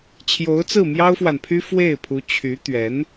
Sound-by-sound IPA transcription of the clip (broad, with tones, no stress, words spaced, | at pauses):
t͡ɕʰjo˧˥ʊ̯t͡sɹ̩˥˩ mjɑ˥ʊ̯fwa˨npʰy˥ fwe˥˩ɪ̯pʰu˧˥ t͡ɕʰy˧˥t̪ɥɛ˧˥n